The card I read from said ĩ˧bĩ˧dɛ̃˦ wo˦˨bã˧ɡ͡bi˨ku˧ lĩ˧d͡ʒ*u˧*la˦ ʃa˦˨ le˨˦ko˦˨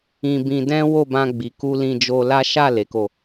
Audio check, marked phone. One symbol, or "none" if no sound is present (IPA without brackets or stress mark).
o˧